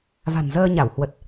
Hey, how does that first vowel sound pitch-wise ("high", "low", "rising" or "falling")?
low